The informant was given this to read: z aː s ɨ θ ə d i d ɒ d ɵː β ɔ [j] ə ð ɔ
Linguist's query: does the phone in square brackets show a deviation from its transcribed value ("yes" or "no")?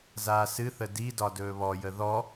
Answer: no